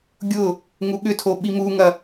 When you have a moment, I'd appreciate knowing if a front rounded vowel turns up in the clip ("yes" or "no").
yes